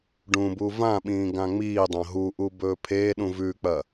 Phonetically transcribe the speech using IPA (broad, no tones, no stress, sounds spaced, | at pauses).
ɖ ũ b u v ã ɓ ĩː ɡ ã ŋ͡m iː dˤ ɐ̃ ɦ u ʔ u b ɵː pʰ e ɗ ũ v ʉ k͡p ɐ